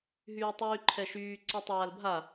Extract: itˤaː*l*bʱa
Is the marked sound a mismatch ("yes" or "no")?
no